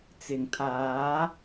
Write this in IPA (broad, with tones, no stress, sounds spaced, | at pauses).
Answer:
t͡s ɪ˨˩ ŋ t̪ʰ aː˨˥